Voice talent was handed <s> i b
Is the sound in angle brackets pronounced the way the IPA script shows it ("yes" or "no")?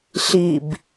no